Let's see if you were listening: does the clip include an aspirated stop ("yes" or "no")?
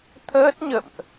yes